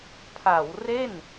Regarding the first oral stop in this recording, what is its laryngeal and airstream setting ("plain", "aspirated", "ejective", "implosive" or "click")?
aspirated